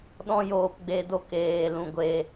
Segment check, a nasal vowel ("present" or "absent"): present